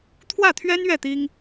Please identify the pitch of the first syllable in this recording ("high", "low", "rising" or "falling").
falling